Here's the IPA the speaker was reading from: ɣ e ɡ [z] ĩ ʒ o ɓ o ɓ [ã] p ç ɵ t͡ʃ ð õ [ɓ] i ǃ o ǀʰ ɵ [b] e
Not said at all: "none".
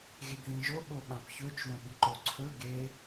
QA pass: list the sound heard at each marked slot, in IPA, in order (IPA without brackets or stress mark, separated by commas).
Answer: ð, ã, ɓ, ɡ